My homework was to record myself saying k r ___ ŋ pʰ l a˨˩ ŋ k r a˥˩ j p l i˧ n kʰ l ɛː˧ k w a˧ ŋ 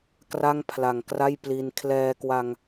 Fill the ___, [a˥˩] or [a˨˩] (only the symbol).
a˥˩